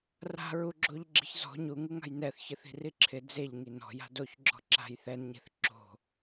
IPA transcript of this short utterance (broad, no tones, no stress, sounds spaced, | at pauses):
r a̤ ɹ u ɡ͡ǁ o ʎ ɡ͡ǁ i̤ ç z ɔ̤ ɲ u ŋ u ŋ a̤ j n ɛ θ ç ɪ θ i̤ r i ǁʰ ɪ d͡z e ʎ ŋ i n ɔ̤ j a̤ d o ç ɡ͡ǁ ɔ̤ ǁ a̤ j θ ɛ n ɲ e̤ θ ǁ o̤